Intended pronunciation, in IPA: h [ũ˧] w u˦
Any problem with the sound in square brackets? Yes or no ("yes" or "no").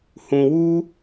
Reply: no